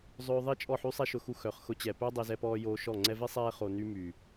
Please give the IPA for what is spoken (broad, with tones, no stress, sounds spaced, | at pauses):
zˤ øː˧ ðˤ i˦ t͡ʃʼ ɔ˦˨ ħ y˦ sˤ ɛ˦ ʃ ʊ˧ x u˧ x œ˨ χ x ʊ˧ t͡ɕ ɛ˨ p œ˦ dˤ e˧ z ɛ˧ p ɔː˧ j oː˧ ʃ ɔ˦˨ ŋ͡ǀ ɛ˧ v e˦ sˤ ɛː˧ χ o˨ n y˧ m yː˨